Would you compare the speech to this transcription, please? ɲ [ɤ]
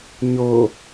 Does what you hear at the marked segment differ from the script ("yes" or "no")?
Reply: no